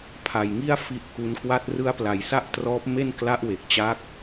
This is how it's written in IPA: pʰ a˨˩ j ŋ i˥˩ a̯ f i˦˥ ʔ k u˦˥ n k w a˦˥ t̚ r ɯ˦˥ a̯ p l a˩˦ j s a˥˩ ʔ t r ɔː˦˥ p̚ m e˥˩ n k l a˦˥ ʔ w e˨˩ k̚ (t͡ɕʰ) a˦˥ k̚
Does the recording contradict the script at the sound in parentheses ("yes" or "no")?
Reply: yes